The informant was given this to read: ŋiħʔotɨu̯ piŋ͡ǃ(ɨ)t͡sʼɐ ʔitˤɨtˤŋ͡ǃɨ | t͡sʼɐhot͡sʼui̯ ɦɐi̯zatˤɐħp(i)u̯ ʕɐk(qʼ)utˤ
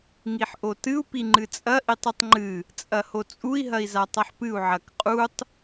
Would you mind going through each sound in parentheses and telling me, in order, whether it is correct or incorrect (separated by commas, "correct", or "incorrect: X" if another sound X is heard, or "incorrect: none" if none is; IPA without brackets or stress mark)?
correct, incorrect: ɨ, correct